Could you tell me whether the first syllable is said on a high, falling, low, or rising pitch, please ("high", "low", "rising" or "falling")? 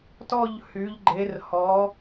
falling